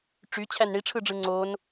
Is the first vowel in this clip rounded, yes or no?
yes